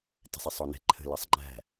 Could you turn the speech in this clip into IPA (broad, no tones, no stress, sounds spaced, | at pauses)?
t ɛ̤ sˤ e sˤ ɔ n ɛ̤ ǃʰ ə̤ l ɜ sˤ ŋ͡ǃ æ̤